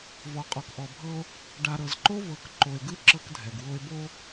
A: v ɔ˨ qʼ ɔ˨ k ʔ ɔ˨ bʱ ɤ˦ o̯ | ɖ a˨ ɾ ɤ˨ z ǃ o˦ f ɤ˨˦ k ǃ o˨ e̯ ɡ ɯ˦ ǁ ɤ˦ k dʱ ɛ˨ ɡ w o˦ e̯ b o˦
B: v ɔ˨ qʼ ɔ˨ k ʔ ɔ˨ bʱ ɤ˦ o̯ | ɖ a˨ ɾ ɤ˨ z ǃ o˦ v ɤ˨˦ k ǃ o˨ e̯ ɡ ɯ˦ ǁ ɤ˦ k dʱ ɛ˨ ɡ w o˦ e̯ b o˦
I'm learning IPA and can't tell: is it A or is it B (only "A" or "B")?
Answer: B